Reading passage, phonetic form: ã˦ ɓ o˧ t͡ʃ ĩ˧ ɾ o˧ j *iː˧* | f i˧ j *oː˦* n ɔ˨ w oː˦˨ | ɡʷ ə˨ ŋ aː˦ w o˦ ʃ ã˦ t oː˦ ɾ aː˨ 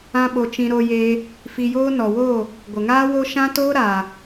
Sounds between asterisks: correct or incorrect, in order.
incorrect, correct

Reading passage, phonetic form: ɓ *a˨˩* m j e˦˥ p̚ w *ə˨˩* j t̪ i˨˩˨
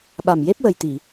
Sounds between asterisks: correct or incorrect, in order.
correct, correct

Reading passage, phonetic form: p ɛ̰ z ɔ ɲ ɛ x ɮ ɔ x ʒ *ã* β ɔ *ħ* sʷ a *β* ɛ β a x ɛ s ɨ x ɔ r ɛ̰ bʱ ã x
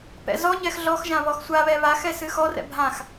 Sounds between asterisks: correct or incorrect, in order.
correct, incorrect, correct

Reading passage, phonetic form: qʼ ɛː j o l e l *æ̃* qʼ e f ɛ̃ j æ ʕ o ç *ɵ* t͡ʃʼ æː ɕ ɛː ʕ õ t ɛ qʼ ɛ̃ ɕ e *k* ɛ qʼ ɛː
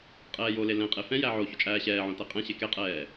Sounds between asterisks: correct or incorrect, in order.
incorrect, correct, correct

